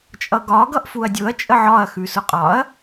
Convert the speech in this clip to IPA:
t͡ʃʼʌɡɒ ɡʌʔfuɐ̯dʲʊɐ̯ t͡ʃʼəʕɒɐ̯ xʉsʊqʼɒɐ̯

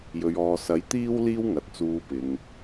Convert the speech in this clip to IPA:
jɵ˨ɥɔː˨sɐ˨˥j t̪iː˥w liː˥wŋɐ˨t̚ t͡suː˨˧pɪ˨ŋ

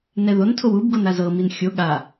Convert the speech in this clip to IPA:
nɛðontʰow ubɡon azɤmin xʲo ɠa

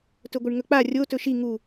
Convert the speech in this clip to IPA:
tɵɡʷɨɳŋɵk͡pa rʲo tɵʃi ŋu

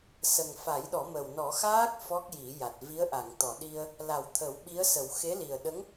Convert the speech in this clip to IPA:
sə˨˩ŋ fa˨˩˦jɗɔ˨˩˦mə˨˩w nɔ˨˩˦xaː˦˥k̚ fɔ˦˥k̚ji˨˩˦ja˨˩t̚ vi˧˥ə̯ʔa˨˩˨ŋt̪ɔ˨˩˨ɗi˧ə̯ | la˨˩˨w t̪ʰə˨˩˦wɓi˧˥ə̯sə˨˩˦w xe˧˥li˨˩ə̯ɗə˧˥ŋ

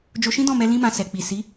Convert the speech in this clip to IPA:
d͡ʒo˧ʃĩ˦dɔ̃˦˨mɛ˧ lĩ˦mã˧ sɛ˨k͡pi˨ si˨˦

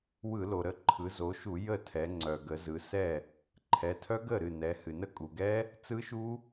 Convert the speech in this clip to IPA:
wɯ˧˩˧lo˩ɾə˥˩ ǃʰɯ˩˧zo˩˧ʃu˧˩˧ jə˥˩tʰɛ˩˧ŋ͡ǀœ˩ ɡə˩˧zɯ˩˧sɛ˥˩ | ǃʰɛ˩˧tʰœ˦˥ɡə˥˩ ɾɨ˥˩nɛ˩˧hɨ˩ nə˥˩kʼu˩ɡɛ˦˥ | t͡sɯ˦˥ʃu˦˥

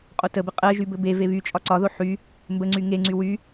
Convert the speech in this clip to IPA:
qʼotəbɘ qʼɜʒy bɘbeve βyt͡ʃʼɒ ǀɒðo ħy | mbəŋ͡ǀy ŋeŋ͡ǀy wy

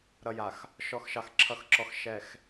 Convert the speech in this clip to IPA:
ɾʌ˨ja˨x | ʃɔ˨˦xʃɑ˨xǁʰʌ˨˦xǁɔ˨x ʃɛ˨x

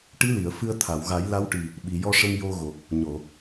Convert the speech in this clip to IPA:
ʈi˧˥li˨˩˨ə̯ fɨ˧ə̯t̪ʰa˨˩˨w ɣa˨˩˦jla˧˥wʈi˨˩ | ɓi˨˩˨jɔ˧ʂə˧m jo˧ɣo˨˩k̚ | ɲo˨˩˨

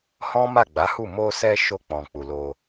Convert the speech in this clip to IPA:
hɔ̃˦ ma˦˨ɡ͡ba˨˦hu˦˨ mo˧sɛ˧ ʃo˧k͡pɔ̃˨k͡pu˨ lo˧

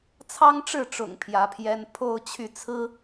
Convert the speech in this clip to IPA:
t͡sʰɑ˥ŋʈ͡ʂɻ̩˥˩ʈ͡ʂʊ̰˨˩ŋ pʰjä˧˥pʰjɛ˥n pʰo˥˧ʊ̯ t͡ɕʰy˥˩t͡sʰɹ̩˥

